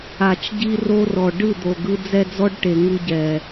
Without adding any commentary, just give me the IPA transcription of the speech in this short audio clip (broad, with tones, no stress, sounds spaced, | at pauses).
a˨ t͡ʃ ɟ i˦ r o˦ r ɔ˨ ɖ ɯ˦˨ d̪ o˨ ɡ ɯ˦ d͡z ɛ˦ d͡z ɔ˦ ɖ ʈ e˨ ŋ ɯ˦ ɟ ɛ˨